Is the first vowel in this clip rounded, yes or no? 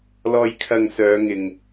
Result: yes